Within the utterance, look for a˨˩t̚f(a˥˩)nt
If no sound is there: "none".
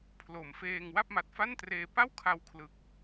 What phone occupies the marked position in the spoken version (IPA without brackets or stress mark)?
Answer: a˥˩